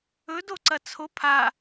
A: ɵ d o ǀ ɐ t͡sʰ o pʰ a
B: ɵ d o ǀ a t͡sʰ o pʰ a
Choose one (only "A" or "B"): A